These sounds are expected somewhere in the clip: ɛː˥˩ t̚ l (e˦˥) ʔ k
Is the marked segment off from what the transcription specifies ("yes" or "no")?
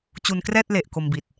yes